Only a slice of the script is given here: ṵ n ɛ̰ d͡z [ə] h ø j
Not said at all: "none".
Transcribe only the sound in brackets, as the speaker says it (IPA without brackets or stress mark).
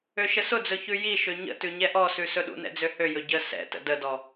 ø